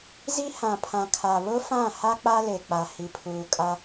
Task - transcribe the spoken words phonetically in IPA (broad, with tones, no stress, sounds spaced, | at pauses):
z i˦ h ã˨ pʰ ã˨ kʰ a˨ β ʊ˦ f ã˦˨ h a˦ k͡p a˦ l e˨ k͡p a˦ h i˦ pʰ uː˦ kʼ a˦